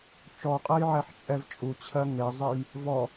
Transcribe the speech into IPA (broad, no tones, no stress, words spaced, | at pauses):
t͡ʃɔqʼɜjʕɛħt͡ʃʼɛv t͡ʃʼut͡ɕʰɜ ŋezˤej | vɔ